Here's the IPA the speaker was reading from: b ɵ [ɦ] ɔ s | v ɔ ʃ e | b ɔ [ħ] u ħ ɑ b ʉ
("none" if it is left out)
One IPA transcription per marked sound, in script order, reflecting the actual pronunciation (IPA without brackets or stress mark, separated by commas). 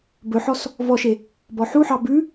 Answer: ħ, ħ